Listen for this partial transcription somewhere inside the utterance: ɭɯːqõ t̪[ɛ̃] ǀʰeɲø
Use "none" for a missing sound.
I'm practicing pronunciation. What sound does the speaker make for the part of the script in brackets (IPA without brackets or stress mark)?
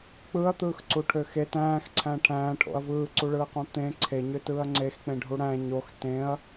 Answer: ẽ